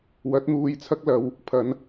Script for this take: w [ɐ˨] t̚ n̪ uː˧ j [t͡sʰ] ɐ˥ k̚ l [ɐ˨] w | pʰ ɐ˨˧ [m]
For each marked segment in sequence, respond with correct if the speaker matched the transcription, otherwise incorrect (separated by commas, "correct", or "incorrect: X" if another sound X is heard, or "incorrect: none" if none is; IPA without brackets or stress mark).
incorrect: ɐ˨˥, correct, incorrect: ɐ˧, incorrect: n